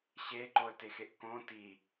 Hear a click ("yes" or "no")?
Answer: yes